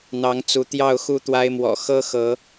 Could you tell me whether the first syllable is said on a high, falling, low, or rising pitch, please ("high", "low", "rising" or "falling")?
rising